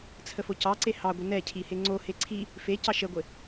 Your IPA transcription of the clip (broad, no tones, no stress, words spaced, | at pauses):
t͡sʰəfocɑǀe hɑɡʷə nɛcʰi heŋ͡ǀohe ǀʰi | fecɑ ʃəɡʷe